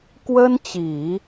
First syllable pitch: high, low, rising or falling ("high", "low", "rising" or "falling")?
high